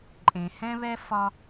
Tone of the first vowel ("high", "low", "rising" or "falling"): low